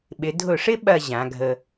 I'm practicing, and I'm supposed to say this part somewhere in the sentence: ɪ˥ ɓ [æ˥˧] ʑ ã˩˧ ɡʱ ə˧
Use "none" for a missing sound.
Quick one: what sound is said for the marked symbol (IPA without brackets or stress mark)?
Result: ɐ˥˧